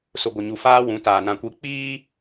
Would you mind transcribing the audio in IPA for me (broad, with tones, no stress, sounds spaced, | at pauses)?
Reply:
s ʊ˨ ɡʷ ɪ˨ ɲ u˨ f aː˦ w ũ˨˦ t aː˨ n ã˨ kʷ i˨˦ k͡p iː˦